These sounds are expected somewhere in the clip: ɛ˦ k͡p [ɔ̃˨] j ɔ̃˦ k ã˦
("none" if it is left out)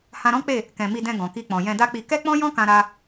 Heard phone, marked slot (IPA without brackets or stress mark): ɔ̃˦